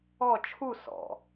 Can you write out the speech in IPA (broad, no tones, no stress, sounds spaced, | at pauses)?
ɔ t͡ʃʰ u s ɔ̰